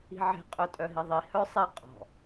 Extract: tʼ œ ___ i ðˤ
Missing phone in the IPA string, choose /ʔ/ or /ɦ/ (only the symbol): ɦ